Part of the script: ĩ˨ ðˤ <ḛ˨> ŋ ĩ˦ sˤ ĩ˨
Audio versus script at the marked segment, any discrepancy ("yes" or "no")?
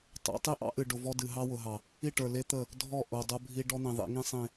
yes